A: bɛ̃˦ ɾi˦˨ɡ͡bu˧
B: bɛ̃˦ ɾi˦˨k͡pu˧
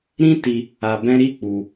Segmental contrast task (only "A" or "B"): B